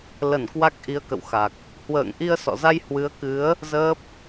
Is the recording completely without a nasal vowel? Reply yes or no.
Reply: yes